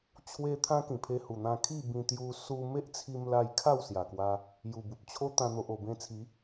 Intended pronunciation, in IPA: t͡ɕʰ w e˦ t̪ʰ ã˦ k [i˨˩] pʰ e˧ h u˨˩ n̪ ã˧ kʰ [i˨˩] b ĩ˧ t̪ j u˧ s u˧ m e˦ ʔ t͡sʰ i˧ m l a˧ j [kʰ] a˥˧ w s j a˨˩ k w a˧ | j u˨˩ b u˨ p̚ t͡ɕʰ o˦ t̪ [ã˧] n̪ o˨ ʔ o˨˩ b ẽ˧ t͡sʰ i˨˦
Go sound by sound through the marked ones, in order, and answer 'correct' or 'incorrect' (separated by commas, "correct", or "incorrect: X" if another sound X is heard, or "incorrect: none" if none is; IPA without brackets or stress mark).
incorrect: ĩ˨˩, incorrect: i˥˧, correct, correct